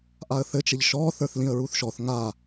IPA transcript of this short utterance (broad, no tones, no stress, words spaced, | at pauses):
ʔaə̯θɘ t͡ʃɘʎʃɔ θə˞θlĩə̯ɹuθʃɔθ ŋa